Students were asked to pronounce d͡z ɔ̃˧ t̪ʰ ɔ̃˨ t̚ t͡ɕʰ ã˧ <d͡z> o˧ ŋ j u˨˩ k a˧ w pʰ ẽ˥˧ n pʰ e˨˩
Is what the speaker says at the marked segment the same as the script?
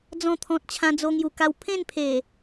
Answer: yes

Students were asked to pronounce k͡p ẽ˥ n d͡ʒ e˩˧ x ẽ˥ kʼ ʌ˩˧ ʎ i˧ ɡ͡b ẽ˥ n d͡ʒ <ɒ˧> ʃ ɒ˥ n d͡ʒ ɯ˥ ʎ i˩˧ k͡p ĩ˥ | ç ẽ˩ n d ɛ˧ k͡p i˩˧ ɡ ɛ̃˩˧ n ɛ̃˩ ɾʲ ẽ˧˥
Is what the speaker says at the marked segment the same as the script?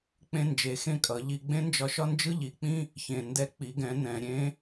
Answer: yes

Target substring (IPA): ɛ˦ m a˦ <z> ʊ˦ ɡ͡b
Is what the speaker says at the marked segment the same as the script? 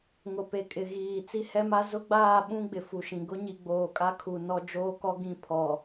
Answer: yes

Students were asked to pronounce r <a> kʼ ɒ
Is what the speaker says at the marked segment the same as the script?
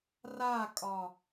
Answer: yes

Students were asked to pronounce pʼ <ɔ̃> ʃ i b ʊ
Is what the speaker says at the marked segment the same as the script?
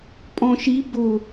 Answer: yes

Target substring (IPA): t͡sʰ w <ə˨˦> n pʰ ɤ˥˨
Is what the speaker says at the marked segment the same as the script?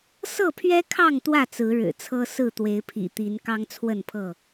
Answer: no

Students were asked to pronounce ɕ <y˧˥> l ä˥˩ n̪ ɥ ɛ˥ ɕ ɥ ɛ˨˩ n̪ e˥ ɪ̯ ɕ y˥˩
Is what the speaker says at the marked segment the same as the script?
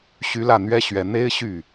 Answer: yes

